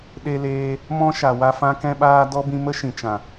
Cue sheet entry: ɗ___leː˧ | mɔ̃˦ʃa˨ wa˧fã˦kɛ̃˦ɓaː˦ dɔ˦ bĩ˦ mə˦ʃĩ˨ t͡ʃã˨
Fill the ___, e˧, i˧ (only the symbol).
e˧